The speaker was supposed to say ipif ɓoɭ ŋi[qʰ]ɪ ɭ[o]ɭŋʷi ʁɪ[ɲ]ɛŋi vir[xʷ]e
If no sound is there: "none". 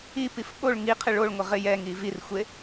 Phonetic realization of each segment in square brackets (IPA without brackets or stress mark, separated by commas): qʰ, o, j, xʷ